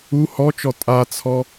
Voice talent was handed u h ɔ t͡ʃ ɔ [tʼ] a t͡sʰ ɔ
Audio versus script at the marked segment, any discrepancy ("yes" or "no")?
no